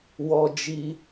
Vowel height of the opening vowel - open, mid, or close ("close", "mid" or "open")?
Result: mid